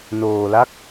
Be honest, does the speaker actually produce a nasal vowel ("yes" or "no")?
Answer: no